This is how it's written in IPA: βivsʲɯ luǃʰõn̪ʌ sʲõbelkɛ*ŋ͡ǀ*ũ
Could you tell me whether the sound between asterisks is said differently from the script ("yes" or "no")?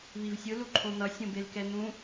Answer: yes